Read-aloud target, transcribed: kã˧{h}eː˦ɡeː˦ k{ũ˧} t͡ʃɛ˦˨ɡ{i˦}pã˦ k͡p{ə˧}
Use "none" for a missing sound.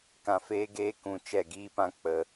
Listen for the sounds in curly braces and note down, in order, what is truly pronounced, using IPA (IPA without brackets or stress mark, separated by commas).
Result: f, ũ˧, iː˦, ə˧